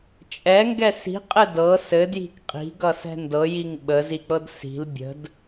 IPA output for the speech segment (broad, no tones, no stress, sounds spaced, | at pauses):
t͡ʃʼ ɛ ŋ ɡ ɛ s i̤ qʼ ɘ d ɤ s ɘ d j i̤ k qʼ i̤ ɡ ʌ s ɛ̤ n d ɤ j i ŋ ɓ ə z i k͡p ɤ d s i̤ l bʲ ə̤ d